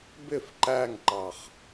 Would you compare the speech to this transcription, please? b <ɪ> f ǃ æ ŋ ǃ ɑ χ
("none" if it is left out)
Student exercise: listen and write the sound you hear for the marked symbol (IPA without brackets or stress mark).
ɪ